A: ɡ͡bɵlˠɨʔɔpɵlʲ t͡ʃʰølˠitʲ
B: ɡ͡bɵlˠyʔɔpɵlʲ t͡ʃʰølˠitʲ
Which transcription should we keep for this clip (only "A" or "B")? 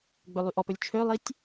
B